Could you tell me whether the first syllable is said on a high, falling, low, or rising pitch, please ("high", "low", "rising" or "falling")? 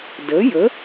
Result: rising